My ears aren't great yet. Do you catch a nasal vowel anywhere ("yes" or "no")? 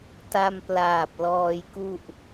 no